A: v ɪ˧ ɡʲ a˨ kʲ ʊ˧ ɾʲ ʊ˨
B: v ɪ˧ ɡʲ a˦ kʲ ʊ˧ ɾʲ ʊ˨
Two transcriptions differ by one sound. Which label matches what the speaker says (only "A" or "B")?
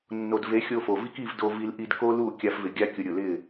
B